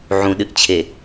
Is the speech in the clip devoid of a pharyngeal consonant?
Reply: no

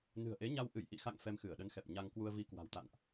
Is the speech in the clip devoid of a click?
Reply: yes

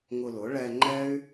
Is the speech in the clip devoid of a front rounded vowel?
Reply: no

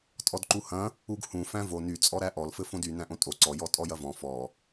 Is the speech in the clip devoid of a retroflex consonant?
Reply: yes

